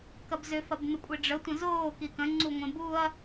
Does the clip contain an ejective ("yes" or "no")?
yes